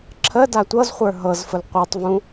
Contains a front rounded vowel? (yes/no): no